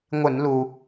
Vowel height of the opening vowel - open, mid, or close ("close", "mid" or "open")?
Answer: close